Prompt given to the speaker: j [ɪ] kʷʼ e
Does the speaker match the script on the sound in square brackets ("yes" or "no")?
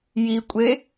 no